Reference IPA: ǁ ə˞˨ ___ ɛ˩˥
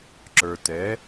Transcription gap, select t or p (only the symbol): t